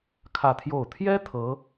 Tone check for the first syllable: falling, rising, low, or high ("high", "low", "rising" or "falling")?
falling